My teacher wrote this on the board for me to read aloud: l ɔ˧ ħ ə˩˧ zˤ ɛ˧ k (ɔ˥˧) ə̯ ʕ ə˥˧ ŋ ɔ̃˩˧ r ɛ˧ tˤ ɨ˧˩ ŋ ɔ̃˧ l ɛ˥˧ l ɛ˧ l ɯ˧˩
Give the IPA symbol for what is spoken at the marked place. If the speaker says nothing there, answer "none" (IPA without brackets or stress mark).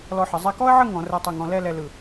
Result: ɔ˥